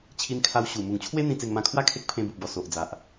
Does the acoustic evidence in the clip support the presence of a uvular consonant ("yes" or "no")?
no